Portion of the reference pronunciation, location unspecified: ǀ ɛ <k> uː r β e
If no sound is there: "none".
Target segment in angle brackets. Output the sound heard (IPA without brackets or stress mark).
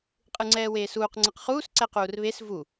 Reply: q